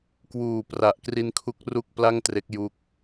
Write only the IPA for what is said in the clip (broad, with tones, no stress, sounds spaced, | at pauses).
k w uː˨˩ p r a˨˩ ʔ k r i˧ n kʰ u˦˥ k̚ r u˥˩ k̚ p l a˥˩ ŋ t r e˦˥ k̚ j u˦˥ k̚